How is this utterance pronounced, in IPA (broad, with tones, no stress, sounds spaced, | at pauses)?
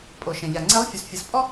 pʼ o˩ ʃ ɛ̃˩ ʎ a˩ ŋ͡ǀ e˧˥ lˠ fʲ u˩˧ s fʲ ɯ˩˧ s pʼ ɔ˥